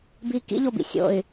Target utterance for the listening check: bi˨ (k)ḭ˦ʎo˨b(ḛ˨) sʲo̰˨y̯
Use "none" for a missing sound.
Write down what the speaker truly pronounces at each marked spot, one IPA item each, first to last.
k, ḭ˨

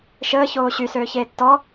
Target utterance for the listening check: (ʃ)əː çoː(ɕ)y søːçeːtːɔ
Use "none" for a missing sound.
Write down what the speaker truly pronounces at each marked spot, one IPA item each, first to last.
ʃ, ɕ

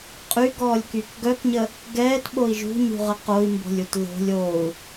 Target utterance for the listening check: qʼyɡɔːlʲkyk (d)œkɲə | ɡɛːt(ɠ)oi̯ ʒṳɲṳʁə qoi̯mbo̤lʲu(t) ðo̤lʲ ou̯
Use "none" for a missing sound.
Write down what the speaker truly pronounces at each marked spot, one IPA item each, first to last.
ɡ, ɓ, t

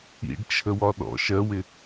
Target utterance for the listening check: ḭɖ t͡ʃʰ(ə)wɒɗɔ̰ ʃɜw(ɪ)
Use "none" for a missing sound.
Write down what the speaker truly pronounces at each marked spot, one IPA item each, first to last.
ə, ɪ

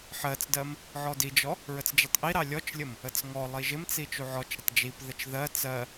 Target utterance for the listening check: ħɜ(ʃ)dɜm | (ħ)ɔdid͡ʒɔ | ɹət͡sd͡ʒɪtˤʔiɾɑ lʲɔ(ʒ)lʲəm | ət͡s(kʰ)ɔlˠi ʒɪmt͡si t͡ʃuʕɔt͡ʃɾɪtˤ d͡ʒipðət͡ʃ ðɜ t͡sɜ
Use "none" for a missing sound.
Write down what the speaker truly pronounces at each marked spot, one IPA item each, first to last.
t͡s, ʕ, t͡ʃ, ŋ

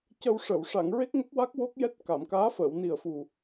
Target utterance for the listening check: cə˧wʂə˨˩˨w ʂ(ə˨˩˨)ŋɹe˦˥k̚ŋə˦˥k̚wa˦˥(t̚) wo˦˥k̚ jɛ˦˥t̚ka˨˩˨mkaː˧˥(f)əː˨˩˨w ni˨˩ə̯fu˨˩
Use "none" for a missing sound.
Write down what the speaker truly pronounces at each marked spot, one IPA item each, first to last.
a˨˩˨, k̚, f

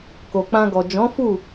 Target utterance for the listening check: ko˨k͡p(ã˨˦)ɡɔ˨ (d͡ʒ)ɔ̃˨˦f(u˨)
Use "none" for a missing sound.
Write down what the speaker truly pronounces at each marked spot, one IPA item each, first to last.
ã˧, d͡ʒ, u˦˨

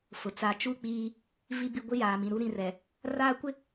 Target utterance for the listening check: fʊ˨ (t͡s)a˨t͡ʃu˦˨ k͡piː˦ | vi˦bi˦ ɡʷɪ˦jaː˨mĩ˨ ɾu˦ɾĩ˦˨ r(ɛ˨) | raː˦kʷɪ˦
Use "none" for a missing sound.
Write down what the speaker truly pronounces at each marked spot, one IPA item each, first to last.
t͡s, ɛ˨

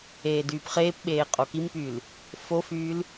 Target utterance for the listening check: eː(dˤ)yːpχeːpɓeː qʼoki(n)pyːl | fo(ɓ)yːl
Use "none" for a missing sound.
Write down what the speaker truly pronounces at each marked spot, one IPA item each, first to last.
d, m, f

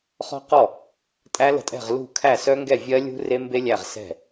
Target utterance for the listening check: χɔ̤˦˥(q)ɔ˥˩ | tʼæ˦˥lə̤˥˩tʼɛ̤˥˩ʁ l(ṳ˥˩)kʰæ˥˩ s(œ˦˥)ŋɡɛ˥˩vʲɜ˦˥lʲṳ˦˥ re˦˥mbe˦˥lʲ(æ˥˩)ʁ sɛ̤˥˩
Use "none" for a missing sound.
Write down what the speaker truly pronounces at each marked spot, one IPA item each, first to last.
q, ṳ˥˩, œ˦˥, æ˥˩

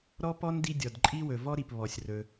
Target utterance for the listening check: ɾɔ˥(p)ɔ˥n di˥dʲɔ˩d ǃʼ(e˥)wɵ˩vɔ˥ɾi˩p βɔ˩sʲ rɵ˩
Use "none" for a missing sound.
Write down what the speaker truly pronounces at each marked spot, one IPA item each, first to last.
p, i˥

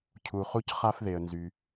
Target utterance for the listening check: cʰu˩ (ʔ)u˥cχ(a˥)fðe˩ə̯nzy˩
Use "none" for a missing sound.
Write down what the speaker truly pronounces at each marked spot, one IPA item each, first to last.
χ, a˥

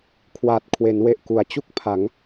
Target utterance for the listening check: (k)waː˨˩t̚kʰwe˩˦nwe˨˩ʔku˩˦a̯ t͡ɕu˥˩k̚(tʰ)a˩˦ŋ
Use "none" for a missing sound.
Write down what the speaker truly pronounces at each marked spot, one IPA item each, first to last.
kʰ, pʰ

